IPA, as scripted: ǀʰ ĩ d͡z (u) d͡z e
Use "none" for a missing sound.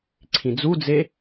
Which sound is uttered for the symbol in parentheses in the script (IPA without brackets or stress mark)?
u